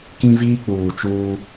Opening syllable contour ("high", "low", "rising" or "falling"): high